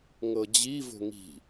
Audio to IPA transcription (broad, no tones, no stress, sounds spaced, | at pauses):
ŋ ɤ d͡ʑ i v o̤ ŋ i̤